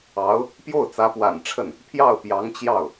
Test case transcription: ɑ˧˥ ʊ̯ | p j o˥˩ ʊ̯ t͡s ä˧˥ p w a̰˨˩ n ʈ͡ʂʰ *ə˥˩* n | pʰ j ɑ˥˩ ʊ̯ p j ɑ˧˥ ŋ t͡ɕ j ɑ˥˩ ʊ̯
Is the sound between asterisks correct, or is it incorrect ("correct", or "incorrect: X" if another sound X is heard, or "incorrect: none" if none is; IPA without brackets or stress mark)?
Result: correct